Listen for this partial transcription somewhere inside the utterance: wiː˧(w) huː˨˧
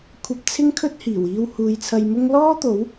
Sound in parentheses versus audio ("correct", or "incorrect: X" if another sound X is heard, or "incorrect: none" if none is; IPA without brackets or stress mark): correct